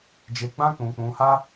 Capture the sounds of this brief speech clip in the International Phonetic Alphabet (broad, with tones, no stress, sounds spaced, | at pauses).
d͡ʒ e˧ ɡ͡b ã˦ k͡p ũ˧ k͡p ũ˧ h a˦